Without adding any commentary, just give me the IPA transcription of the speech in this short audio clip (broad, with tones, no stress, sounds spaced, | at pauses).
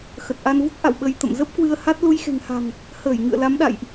x ə˨˩ t̚ ʔ a˧ n v u˦˥ k̚ ʔ a̰˧˨ w ɓ ə˧ j t̪ ə̰˧˨ m z ə˦˥ p̚ k w ɨ˧ ə̯ h a˦˥ t̚ l u˧ j x e̤˨˩ ŋ h a̤˨˩ ŋ | h əː˧˩ j ŋ ɨ̰˧˨ ə̯ l a˨˦ m ɗ a̰˧˨ j ʔ